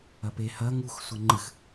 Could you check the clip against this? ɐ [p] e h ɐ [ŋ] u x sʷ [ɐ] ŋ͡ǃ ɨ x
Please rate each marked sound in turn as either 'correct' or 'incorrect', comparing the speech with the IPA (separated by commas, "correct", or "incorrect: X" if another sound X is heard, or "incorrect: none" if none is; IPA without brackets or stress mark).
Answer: correct, correct, correct